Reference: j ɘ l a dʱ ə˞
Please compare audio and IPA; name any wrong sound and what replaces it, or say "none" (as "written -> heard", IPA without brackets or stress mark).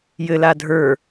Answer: none